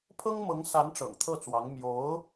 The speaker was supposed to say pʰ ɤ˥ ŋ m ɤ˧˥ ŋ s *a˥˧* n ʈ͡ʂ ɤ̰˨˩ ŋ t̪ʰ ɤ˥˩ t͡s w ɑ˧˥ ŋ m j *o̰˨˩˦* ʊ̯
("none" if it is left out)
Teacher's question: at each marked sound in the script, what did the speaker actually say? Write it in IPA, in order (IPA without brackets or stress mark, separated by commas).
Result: a˧˥, o˧˥